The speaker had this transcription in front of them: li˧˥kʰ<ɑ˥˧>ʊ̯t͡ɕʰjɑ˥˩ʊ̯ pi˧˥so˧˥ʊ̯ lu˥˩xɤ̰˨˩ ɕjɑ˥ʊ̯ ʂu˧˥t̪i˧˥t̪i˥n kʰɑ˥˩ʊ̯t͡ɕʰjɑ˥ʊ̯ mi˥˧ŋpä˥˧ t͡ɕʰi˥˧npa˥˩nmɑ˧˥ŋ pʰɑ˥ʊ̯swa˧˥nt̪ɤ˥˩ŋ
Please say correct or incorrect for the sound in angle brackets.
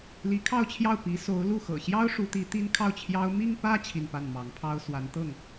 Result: correct